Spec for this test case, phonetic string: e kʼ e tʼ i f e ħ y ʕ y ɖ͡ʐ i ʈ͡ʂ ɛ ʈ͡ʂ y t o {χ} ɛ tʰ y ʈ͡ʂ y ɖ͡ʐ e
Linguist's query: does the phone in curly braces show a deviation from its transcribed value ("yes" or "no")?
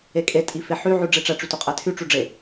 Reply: yes